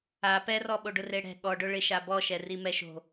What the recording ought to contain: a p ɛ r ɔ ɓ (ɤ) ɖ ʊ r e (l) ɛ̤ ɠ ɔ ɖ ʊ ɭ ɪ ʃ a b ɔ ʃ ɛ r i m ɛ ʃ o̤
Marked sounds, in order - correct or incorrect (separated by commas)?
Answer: incorrect, incorrect